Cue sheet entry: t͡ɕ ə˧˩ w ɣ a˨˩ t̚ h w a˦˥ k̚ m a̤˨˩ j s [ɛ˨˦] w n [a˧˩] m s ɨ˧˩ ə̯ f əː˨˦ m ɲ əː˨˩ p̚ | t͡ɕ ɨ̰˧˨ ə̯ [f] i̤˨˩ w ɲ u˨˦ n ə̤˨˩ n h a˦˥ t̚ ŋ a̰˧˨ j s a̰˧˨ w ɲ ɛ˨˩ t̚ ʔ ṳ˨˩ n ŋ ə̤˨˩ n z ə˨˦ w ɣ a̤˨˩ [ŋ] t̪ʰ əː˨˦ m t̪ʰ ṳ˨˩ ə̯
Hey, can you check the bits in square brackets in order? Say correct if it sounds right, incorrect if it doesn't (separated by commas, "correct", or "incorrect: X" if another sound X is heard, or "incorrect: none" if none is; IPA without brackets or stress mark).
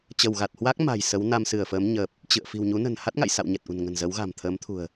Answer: incorrect: ə˨˦, incorrect: a˧, correct, incorrect: m